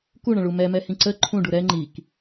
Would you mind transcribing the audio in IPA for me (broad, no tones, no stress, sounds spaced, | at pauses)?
k u ɳ ə̃ ɭ u m ɛ m ɛ h ĩ ǀ ə ǃʰ ũ ɖ u ɾ ɛ ŋ͡ǃ i k